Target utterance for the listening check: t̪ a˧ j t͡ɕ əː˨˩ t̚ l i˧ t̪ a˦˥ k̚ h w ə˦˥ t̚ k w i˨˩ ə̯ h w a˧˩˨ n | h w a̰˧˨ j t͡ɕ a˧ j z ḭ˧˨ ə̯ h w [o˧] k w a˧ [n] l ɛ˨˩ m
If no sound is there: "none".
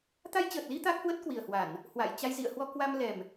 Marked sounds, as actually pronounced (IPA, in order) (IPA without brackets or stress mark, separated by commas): ɔ˧, m